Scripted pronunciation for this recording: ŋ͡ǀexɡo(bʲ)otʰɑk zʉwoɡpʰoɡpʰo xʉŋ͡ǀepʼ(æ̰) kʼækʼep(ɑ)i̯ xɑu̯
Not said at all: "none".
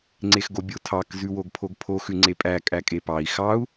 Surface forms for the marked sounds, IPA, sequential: bʲ, æ, ɑ

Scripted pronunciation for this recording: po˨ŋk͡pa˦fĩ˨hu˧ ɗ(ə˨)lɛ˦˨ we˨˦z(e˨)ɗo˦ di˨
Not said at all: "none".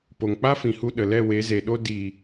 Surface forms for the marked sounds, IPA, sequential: ə˨, e˨

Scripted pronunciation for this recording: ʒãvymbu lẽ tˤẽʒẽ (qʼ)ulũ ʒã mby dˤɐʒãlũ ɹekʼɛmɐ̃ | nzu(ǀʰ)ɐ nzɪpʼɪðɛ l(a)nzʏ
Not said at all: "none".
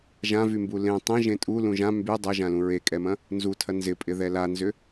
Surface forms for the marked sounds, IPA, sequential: tʼ, tʰ, a

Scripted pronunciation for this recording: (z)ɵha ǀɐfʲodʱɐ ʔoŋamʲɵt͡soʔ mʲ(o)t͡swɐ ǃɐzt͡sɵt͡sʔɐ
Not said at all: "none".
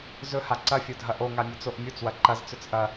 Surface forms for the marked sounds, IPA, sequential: z, u

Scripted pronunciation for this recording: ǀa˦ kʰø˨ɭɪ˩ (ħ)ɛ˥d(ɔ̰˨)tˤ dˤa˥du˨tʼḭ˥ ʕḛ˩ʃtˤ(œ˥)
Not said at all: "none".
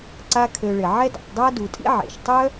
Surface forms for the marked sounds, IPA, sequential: ʕ, ɔ̰˨, œ˥

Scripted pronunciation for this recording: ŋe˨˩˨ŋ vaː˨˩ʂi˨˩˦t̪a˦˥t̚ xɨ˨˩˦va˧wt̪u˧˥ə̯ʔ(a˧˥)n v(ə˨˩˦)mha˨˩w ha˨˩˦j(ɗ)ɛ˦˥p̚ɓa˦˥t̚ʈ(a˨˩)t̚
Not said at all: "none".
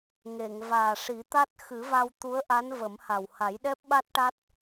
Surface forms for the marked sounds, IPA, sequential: a˧˥, ə˨˩˦, ɗ, a˦˥

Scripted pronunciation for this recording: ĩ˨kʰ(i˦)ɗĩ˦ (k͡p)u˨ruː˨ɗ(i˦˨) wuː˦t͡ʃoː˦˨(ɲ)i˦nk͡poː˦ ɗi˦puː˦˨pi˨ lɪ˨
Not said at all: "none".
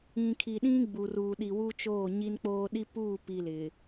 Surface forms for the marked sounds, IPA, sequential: i˨, ɡ͡b, i˨, ɲ

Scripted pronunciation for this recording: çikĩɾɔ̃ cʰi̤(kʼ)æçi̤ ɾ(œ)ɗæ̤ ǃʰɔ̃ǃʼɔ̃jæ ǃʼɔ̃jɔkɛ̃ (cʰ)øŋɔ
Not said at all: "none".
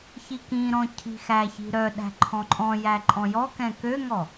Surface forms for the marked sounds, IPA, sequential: x, œ, k

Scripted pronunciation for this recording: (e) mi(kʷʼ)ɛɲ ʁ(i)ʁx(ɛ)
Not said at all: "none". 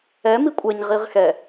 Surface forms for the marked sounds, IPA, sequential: ɛ, kʷʼ, i, ɛ

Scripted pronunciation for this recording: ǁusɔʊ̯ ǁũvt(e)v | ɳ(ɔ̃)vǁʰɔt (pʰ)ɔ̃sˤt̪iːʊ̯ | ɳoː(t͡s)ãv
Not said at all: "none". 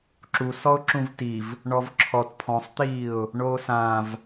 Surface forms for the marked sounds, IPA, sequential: i, ɔ, pʰ, s

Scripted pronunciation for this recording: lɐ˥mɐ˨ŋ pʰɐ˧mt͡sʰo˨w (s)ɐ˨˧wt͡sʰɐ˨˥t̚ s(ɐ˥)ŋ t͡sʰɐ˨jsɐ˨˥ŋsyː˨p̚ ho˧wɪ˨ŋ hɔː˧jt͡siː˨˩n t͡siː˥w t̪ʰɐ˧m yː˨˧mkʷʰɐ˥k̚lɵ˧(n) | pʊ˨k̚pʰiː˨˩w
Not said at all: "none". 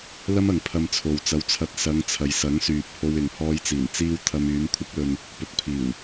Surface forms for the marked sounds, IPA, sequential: t͡s, ɐ˨˧, n

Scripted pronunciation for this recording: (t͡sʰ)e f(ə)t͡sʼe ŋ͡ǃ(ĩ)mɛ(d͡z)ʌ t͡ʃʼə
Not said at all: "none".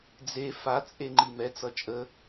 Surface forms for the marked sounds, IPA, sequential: d͡z, a, i, t͡s

